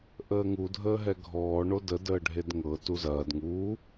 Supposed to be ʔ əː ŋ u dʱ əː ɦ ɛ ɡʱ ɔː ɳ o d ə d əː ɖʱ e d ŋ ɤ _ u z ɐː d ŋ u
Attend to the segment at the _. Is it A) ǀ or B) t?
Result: B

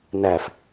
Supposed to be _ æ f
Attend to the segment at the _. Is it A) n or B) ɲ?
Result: A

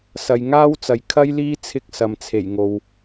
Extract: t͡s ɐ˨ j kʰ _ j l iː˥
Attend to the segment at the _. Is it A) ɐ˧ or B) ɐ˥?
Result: B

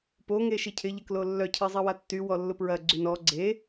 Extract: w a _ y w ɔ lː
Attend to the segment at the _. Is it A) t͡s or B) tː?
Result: B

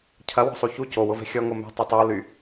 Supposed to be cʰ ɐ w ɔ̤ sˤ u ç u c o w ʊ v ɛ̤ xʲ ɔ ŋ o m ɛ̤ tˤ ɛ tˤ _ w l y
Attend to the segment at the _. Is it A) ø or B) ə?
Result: A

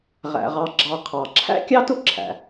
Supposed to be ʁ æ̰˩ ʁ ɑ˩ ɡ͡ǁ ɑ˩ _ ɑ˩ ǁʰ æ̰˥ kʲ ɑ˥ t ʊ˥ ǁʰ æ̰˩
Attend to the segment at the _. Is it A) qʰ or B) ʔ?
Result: A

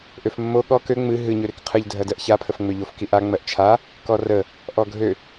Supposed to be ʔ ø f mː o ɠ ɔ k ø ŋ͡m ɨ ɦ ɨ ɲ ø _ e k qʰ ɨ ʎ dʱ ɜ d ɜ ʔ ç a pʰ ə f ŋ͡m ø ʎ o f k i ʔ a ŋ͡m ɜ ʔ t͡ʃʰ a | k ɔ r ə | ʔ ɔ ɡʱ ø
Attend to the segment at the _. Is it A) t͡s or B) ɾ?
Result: B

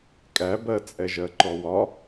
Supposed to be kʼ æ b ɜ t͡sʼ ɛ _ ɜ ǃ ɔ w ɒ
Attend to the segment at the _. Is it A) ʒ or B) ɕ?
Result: A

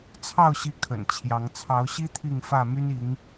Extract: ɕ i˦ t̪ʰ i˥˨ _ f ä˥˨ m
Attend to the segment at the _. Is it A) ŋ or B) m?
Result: A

